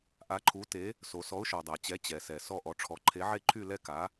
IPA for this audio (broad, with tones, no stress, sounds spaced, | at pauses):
ʔ a˨˥ ǃʰ u˨˥ t e˨˥ | s o˩ s ɔ˨˥ ʊ̯ ʃ ɔ˩ dˤ a˩ t͡ɕ ɛ˨˥ t͡ɕ ɛ˩ s ɛ˩ s ɔ˥˧ ʔ ɔ˨˥ ʈ͡ʂʰ ɔ˨˥ ǃʰ e˨˥ ʕ e˥˧ ǃʰ y˥˧ l ɛ˥˧ k a˨˥